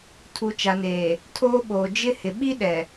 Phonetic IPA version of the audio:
tʰ u˨ t͡ʃ a˨ n eː˨ | tʰ oː˦ ɓ oː˨ d͡ʒ ɪ˦ h ɪ˨ ɓ i˦ ɗ ɛ˨

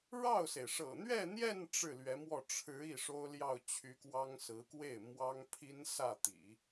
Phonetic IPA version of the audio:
ɻ ɑ˥˩ ʊ̯ s e˩ ɪ̯ ʂ ɤ̰˨˩ n̪ ɥ ɛ˥˧ n̪ j ɛ˥˧ n ʈ͡ʂ ɻ̩˥˩ l ɥ ɛ˧˥ m w ɔ˥˩ ʈ͡ʂʰ ɻ̩˧˥ i˥˩ ʂ o˥ ʊ̯ l j ɑ˥˩ ʊ̯ t͡ɕʰ y˧˥ k w ɑ˥ ŋ s ɹ̩˧˥ k w e˥˩ ɪ̯ m w ɑ˥ ŋ pʰ i˥ n s ä˥˩ t̪ ḭ˨˩˦

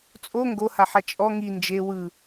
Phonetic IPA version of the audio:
t͡sʼ o ŋ ɡ o h a ħ a t͡ʃʼ ɔ ŋ i n d͡ʒ e w ɯ

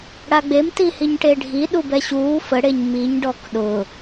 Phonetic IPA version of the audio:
ɽ a ɡ͡b e m t i h i ɲ ʈ e ɖʱ i ɗ u b ɛ ɕ uː f ə ɽ e ɲ m i ɲ ɖ ɔ k ɗ ʊ

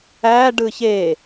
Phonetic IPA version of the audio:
æ ɖ ɯ ç e

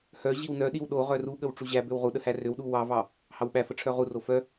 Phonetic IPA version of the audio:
h œ ʑ i w n œ ɗ i w ɗ o ʁ œ r u ɠ ə w ʈ͡ʂ u ʑ æ b ø w ʁ u ɗ ə h æ r ø w ɗ u w ɑ v ɑ | h ɑ w ɓ æ f ə ʈ͡ʂʰ œ ʁ u r o f œ

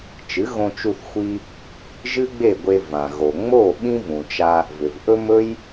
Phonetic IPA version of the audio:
t͡ʃ ɨ˩˥ ɣ õ˧ t͡ʃ u˧ θ xʷ i˧ | ʒ ɨ˥ ɡ͡b e˥˩ ɡʷ e˧ v ã˩ ɣ o˩ ŋ͡m o˥˩ ɓ ĩ˥ v ũ˩ t͡ʃ a˧ | v ʏ˩ v ʔ ɵ˥ m ɵ˥ j

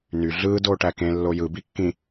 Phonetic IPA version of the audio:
n y ɮ ɯː d oː ʈ æ k ẽ lː o j ɯ b i kː ĩ

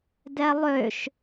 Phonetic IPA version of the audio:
d ɛ lˠ ø ʃ

